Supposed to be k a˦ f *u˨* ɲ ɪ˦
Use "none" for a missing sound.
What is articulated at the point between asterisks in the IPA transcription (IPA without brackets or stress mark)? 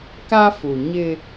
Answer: u˨